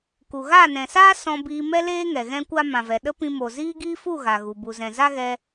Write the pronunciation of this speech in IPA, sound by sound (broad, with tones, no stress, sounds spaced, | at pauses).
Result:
k u˨ ɣ a˦˨ n ɛ̃˨ s aː˦ s ɔ̃˧ b iː˧ m ɛ˦ l eː˦ ŋ ɛ˨ ɣ ɛ̃˦ kʷ a˦ m ã˨ v ɛ˨ ɗ ə˦ p ĩ˧ m o˨ z iː˦ ɡ iː˦ f u˦˨ ɣ a˨ ɣ u˨ b u˨ z ɛ̃˨ z a˦ ɣ ɛ˧